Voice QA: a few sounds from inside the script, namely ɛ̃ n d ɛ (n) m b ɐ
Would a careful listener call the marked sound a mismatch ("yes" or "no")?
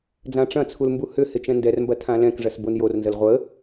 yes